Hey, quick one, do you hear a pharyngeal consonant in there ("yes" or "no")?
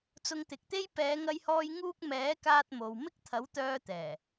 no